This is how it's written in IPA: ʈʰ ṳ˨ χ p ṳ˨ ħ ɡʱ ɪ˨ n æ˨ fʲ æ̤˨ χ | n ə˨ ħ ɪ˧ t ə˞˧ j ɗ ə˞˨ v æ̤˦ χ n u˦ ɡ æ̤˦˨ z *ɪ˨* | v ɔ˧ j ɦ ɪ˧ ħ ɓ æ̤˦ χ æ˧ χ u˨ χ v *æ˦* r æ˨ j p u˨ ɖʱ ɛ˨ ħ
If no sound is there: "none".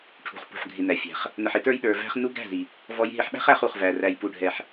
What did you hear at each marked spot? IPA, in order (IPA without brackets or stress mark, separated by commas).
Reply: i˨, æ˨